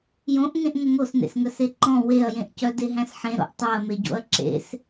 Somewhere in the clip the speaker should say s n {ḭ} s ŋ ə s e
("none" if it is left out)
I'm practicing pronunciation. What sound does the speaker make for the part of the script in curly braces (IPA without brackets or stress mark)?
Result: ḛ